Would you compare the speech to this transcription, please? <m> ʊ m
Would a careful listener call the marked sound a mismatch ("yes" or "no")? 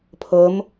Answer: yes